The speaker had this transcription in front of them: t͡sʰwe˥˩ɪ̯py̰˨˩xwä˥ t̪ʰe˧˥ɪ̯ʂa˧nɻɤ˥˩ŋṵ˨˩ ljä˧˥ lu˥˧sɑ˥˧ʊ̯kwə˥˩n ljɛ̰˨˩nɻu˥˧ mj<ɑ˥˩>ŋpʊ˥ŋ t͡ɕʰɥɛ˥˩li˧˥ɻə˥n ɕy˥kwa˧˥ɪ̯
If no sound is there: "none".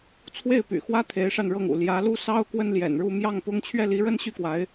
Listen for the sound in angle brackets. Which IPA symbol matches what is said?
ɑ˥˩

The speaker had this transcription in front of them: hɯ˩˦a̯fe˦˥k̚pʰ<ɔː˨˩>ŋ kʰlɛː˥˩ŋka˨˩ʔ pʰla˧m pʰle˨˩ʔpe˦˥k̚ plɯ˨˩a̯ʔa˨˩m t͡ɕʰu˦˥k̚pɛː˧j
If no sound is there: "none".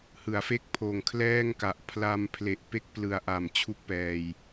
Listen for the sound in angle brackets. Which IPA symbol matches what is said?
oː˨˩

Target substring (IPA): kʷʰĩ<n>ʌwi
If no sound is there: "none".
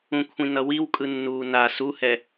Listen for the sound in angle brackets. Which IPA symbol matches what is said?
n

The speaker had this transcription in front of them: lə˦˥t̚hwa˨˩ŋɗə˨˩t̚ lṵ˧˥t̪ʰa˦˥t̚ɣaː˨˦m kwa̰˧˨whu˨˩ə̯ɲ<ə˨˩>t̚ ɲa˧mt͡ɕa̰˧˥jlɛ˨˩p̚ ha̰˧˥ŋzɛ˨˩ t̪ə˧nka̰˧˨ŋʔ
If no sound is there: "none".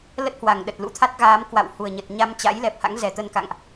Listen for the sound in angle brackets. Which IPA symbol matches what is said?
ə˨˩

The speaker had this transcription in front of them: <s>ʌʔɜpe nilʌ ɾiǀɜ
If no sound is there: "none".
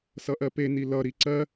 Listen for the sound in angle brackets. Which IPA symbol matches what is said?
s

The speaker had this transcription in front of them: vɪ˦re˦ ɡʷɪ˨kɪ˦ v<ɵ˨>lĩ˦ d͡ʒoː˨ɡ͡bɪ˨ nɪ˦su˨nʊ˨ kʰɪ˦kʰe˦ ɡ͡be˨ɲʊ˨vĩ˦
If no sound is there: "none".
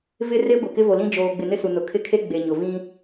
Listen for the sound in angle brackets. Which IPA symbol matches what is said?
o˨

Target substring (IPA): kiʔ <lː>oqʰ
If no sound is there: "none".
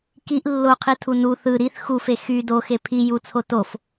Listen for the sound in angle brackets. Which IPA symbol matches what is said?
lː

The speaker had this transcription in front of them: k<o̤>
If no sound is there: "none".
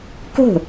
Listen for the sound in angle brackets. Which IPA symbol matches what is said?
o̤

